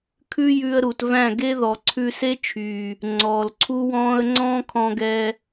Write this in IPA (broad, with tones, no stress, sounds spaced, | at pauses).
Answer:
kʰ ʉ˦ j ʉ˧ ə̯ ɾ u˨ t v æ̃˦˨ ɡ e˦ ð ɔ˨ ǀʰ ʉ˧ s e˦ t͡ʃʰ yː˨ | ŋ͡ǀ ɔː˨ l ǀʰ u˦ w ɔ̃ː˦ ə̯ ŋ͡ǀ ɔ̃ː˦ kʰ ɔ̃˧ ɡ ɛ˧